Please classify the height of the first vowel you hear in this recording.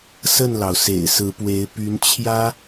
mid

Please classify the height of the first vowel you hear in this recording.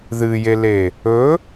high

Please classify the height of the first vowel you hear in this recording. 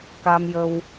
low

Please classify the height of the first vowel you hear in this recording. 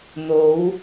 mid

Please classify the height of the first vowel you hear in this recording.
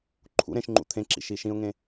high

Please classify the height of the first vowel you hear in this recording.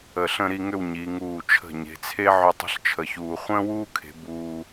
mid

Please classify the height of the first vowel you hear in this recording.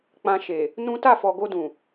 low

